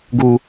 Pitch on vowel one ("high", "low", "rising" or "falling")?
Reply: high